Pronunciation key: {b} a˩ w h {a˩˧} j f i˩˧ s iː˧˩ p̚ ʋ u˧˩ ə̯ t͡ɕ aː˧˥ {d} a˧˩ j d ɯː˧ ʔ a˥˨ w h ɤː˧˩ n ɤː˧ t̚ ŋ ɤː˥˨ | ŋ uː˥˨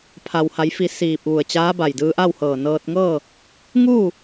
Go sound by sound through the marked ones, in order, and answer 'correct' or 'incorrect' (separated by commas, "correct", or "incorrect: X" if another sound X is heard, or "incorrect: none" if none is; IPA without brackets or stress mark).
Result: incorrect: pʰ, correct, incorrect: b